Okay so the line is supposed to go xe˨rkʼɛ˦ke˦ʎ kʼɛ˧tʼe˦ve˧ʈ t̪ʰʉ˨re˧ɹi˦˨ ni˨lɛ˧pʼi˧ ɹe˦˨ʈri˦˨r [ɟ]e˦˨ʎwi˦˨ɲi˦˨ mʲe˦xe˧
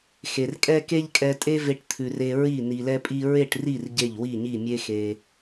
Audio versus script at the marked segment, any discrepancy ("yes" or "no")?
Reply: no